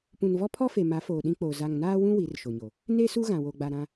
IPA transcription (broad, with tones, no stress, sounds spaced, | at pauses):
p ũ˨ n v ɔ˦ pʰ ɔ˦ f e˨ m a˨˦ f oː˨ ɗ ĩ˦ k͡p oː˨ z a˨ ŋ n aː˦ w ũ˦ w i˨˦ r ʃ o˨ ɲ o˨ | n e˦ s u˦ ɣ ã˨ w o˨ ɡ͡b a˨ ɾ ã˨